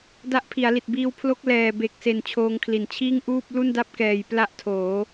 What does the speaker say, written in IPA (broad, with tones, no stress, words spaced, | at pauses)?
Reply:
da˦˥ʔpʰi˩˦a̯li˨˩t̚ biː˧wpʰlo˦˥k̚ lɛː˨˩be˨˩k̚se˨˩n t͡ɕʰoː˧ŋkʰli˨˩nt͡ɕʰiː˥˩ŋ ʔuː˥˩p̚ lu˥˩nda˥˩p̚kɛː˨˩j pla˥˩ʔtʰoː˩˦